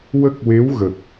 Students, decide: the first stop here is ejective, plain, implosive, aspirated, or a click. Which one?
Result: plain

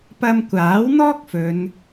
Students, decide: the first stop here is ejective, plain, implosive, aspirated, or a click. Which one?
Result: plain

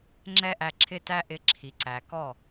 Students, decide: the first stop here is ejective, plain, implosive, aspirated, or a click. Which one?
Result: click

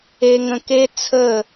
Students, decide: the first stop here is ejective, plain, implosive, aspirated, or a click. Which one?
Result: plain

